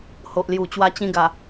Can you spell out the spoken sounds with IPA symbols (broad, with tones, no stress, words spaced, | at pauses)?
ho˨ʔlju˨˩t͡ɕwa˧ t͡ɕĩ˧ɡa˨˩